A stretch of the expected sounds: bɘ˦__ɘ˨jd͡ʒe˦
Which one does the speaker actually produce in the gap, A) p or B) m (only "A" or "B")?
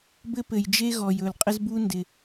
A